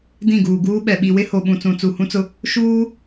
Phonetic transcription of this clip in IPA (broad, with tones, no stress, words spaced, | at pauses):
dĩ˦˨ɡuː˨ɡuː˦ɓɛ˨ ɓi˨wɪ˦ ho˨ɓũ˨t͡sũ˨ t͡su˨hũ˦t͡sʊ˦ | ʃuː˦